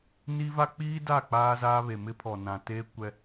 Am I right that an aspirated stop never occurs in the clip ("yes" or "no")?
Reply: no